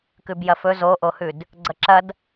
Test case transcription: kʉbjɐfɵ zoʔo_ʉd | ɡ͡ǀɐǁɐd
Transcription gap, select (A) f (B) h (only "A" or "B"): B